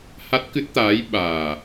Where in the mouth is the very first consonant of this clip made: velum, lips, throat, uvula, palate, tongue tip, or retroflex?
throat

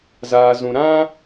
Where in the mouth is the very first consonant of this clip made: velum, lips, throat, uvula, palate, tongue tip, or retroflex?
tongue tip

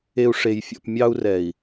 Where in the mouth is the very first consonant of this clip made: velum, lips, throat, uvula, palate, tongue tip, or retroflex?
retroflex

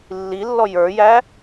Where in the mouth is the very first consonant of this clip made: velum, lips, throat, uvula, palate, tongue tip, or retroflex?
tongue tip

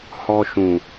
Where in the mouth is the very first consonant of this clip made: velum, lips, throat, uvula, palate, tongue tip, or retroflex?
throat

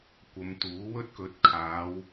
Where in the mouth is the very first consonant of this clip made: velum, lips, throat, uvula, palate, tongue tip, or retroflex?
velum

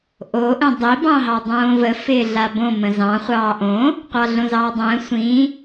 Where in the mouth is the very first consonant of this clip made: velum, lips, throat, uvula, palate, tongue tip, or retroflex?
throat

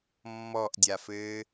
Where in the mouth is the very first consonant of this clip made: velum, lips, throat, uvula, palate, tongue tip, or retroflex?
lips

